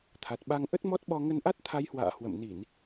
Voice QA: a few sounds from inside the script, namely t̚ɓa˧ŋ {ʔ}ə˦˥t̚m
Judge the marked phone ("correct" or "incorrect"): correct